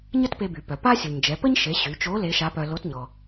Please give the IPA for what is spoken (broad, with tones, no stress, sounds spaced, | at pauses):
ɲ ə˥ t p e˧ b y˩ p œ˩ p a˥ sʲ u˩ ɲ d͡ʒ ɛ˩˧ p ə˥ ɲ ʃ e˩˧ ɕ y˩˧ t͡ʃ o˧˥ l e˧˥ ʃ a˧˥ p œ˧ l o˧˥ t ɲ ɔ˩